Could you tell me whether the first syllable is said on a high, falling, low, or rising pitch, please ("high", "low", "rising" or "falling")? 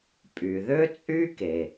low